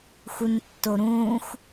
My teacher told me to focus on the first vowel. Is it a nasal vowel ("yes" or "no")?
no